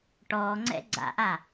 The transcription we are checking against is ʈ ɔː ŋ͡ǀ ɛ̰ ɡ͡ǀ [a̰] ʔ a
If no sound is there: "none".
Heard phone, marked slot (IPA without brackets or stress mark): a̰